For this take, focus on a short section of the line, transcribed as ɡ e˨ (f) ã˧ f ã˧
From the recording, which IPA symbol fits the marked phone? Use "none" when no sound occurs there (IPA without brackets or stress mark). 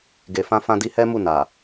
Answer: f